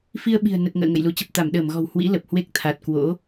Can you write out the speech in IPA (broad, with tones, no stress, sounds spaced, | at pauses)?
f i˧ ə̯ ɓ i̤˨˩ ə̯ n ə˨˩ t̚ ŋ ə̰ː˧˨ ŋ ə̰˧˨ j l u˨˦ t͡ɕ ə˨˩ p̚ t̪ a˧˩ m ɗ əː˧˩ m ɣ ɔ̤˨˩ w h w ḭ˧˥ l ə˨˩ p̚ h w e˦˥ k̚ t̪ʰ a˨˩ t̚ k w o̰˧˥